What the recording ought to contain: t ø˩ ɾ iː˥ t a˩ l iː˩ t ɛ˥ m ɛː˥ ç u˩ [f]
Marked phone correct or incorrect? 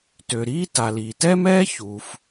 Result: correct